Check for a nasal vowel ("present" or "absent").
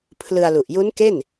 absent